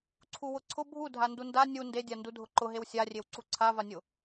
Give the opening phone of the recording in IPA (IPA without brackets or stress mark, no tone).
ǀʰ